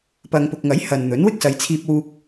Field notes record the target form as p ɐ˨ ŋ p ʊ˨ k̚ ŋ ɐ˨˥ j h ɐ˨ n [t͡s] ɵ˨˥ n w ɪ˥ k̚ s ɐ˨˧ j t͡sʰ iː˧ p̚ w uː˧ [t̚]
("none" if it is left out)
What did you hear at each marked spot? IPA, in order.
n̪, k̚

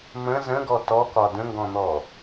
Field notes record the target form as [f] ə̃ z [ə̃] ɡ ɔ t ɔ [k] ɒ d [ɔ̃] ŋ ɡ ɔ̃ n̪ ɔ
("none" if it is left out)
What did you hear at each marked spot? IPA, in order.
m, ə̃, k, ə̃

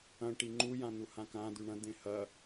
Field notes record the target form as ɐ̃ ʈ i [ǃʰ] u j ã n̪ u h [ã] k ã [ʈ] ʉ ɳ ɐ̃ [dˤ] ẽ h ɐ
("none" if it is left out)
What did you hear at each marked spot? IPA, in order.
ŋ͡ǃ, ã, d̪, d̪

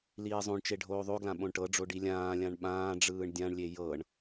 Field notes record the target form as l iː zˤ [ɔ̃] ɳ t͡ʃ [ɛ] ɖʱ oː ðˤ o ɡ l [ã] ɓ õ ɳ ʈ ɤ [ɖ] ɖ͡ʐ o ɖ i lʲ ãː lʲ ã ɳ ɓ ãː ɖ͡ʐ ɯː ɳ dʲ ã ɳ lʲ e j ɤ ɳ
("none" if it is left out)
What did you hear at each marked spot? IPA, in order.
õ, e, ã, none

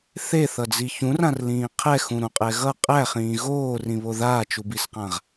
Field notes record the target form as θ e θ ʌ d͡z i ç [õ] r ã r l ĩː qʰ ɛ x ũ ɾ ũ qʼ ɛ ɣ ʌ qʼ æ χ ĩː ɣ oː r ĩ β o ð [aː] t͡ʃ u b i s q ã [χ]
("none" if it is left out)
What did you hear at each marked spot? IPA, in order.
ũ, aː, ʁ

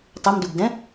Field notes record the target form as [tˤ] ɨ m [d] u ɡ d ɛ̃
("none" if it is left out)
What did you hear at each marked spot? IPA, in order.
tˤ, d

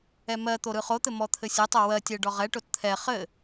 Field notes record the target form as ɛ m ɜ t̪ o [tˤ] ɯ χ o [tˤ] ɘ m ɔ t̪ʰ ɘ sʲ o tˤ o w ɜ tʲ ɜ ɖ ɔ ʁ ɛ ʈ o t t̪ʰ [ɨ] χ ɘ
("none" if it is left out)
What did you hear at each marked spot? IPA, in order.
ɾ, t̪, ɛ

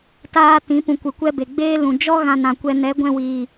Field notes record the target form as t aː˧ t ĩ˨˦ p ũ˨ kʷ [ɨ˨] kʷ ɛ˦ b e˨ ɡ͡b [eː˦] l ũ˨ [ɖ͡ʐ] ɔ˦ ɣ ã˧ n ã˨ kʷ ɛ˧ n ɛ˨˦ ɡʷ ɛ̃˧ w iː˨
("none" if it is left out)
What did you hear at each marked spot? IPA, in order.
ɨ˨, eː˦, d͡ʒ

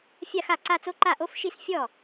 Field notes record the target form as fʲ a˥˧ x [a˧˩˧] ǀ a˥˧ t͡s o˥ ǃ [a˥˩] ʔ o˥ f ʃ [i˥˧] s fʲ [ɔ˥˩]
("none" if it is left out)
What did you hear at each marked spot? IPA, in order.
a˥˩, a˥˩, i˥˧, ɔ˥˩

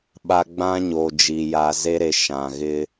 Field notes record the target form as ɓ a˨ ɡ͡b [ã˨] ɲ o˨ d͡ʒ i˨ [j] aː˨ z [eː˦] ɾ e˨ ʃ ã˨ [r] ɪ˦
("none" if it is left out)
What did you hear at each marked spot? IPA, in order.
ã˦, j, e˦, ɣ

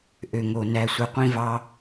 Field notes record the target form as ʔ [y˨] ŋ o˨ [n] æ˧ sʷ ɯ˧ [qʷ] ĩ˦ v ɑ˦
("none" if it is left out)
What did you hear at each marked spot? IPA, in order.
ø˨, n, qʷ

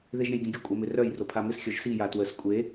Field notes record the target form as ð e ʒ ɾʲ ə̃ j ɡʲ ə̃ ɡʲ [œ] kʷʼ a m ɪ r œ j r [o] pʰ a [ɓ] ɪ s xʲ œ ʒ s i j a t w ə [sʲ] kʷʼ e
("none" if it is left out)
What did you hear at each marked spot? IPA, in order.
ə, o, m, s

